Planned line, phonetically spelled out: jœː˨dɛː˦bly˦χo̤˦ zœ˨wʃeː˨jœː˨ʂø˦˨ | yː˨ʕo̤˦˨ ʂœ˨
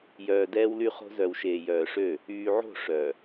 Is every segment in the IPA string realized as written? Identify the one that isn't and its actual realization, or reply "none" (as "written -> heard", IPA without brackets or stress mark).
b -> w